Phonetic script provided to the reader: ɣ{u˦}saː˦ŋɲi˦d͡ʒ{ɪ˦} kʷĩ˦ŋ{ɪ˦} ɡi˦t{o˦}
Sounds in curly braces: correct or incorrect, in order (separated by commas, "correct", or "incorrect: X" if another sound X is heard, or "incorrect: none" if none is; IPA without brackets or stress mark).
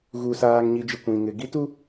correct, correct, correct, incorrect: u˦